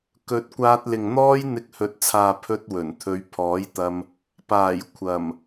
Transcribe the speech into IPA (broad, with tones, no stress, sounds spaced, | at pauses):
k ɵ˨˥ t̚ kʷ aː˧ t̚ l ɪ˨ ŋ n̪ ɔː˥ j n̪ ɪ˧ k̚ h ɵ˨ t̚ t͡sʰ aː˨ pʰ ɵ˥ t̚ w ɵ˨˩ n t̪ʰ ɵ˨˧ ɥ pʰ ɔː˨˥ j t̪ ɐ˧ m | p aː˨˩ j kʷʰ ɐ˨˩ m